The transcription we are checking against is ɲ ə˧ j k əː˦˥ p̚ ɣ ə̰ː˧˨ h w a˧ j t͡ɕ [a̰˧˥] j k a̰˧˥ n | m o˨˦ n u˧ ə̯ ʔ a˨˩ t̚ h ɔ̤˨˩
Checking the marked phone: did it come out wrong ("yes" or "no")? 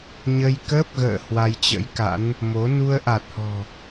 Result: yes